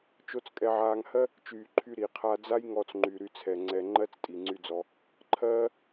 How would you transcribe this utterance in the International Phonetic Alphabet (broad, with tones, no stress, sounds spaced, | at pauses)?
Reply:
t͡ʃ o˧ t͡s kʼ ɛ˧ ʕ aː˧ ŋ h ɜ˦ | t͡ʃ yː˨ ǃʰ y˧ ɾ i˨ qʰ a˧ d͡z a˦ j ŋ ɔ˧ t͡s ŋ͡ǃ y˨ ɾ y˧ t͡sʰ ɛ˨ ŋ͡ǀ ɛ˧ ŋ͡ǃ ɜ˦ t͡s tʼ i˨ ŋ͡ǀ y˧ d͡z ɔ˧ | ǃʰ ɜː˦